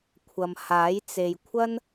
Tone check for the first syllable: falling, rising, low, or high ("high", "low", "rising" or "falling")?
low